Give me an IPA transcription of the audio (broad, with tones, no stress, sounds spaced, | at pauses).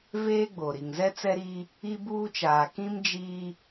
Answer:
v eː˦ ɡ͡b o˨ ɾ i˨ ŋ z ɛ˦ t͡s ɛ˦ ɾ i˦ | i˦ b uː˦ t͡ʃ aː˨ k ĩ˦ m d͡ʒ i˦